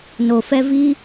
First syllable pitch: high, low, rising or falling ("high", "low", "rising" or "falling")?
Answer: low